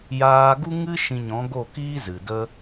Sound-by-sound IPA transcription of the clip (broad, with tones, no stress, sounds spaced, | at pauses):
j aː˧ ɡ u˦ ŋ ɨ˦ ʃ ĩ˧ ɲ ɔ̃˨˦ ɡ o˦˨ k iː˦ z ɨ˨ d ə˦